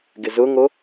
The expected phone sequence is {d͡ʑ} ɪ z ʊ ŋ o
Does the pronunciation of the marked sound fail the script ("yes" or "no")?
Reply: yes